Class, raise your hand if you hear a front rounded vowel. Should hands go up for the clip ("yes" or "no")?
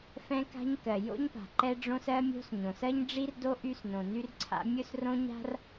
yes